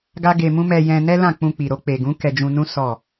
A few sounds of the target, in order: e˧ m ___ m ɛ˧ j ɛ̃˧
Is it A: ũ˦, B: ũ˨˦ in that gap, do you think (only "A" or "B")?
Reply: A